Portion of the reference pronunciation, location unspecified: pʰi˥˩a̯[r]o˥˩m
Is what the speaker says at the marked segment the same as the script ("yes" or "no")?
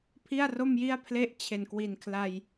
yes